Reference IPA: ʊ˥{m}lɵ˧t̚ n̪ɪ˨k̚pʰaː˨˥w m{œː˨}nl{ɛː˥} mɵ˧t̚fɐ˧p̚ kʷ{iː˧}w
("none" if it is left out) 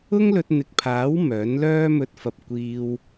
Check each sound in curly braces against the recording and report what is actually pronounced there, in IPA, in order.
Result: ŋ, œː˨˥, œː˥, iː˧

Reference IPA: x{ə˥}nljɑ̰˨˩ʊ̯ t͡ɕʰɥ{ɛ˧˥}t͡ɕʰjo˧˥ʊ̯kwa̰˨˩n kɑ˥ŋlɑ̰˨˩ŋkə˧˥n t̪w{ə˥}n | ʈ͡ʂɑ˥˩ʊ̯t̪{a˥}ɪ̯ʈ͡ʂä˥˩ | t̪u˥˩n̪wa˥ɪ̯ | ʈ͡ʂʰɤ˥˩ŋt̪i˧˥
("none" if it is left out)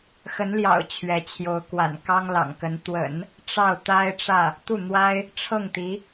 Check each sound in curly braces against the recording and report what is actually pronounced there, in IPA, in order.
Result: ə˧˥, ɛ˧˥, ə̰˨˩˦, a˥

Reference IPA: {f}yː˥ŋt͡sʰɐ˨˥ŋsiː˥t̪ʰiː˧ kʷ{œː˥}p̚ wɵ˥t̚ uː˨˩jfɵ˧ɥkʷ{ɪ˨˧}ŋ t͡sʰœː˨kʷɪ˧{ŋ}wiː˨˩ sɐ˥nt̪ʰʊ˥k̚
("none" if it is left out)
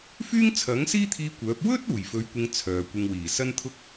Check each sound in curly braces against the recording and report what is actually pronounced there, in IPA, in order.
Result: f, œː˨˥, ɪ˧, ŋ

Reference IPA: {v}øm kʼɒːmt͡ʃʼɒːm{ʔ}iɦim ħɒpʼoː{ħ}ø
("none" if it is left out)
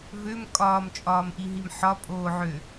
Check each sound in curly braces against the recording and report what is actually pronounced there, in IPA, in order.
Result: v, ʔ, ʕ

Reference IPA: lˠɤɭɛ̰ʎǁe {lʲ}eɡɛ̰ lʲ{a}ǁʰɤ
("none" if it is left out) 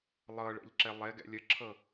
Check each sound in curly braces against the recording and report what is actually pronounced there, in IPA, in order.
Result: lˠ, ə

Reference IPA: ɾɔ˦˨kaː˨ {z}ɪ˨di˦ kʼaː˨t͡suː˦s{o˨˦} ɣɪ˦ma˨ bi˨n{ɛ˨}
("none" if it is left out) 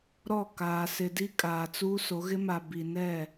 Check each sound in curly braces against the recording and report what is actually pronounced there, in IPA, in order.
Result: s, o˨˦, ɛ˦˨

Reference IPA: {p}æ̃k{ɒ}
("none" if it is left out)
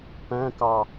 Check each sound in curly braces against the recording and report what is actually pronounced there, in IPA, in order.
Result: p, ɑ

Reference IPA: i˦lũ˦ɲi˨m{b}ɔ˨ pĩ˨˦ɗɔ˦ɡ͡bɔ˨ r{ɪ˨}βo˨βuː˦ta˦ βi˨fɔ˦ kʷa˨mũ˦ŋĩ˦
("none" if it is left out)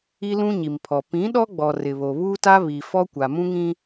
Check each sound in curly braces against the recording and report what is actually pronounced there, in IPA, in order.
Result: pʰ, ɪ˨

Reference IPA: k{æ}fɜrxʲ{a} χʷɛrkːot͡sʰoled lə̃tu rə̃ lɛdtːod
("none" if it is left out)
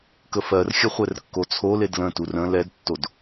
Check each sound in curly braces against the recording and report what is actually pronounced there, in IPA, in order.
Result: ə, ə

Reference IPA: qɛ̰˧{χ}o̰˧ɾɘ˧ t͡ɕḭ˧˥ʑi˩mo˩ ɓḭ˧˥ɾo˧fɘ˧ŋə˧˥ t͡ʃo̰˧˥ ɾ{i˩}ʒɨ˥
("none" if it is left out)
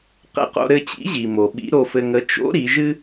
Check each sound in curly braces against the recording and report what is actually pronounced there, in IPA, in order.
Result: q, i˩˧

